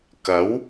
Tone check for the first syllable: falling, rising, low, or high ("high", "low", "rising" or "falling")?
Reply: rising